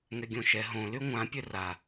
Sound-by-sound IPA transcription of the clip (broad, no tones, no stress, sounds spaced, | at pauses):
ŋ ɛ ɡʲ õ ʃ ɛ ɦ õ l y ŋʷ ã pʲ ø r a